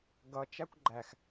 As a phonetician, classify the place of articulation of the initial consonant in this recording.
velar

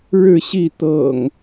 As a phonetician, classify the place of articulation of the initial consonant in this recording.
retroflex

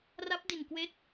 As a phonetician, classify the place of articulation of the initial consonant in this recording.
alveolar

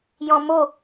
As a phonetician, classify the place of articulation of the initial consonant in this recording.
palatal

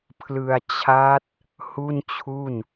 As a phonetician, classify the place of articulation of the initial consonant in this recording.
labial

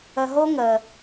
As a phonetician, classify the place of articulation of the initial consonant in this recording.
glottal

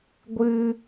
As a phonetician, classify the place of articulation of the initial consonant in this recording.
velar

